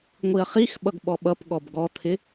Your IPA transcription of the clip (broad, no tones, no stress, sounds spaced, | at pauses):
ŋʷ i ɐ̯ χ i x ɓ ʌ ɡ ɓ ɔ ɓ ʌ p ɠ ɔ b ɡ ɔ t̪ʰ ɪ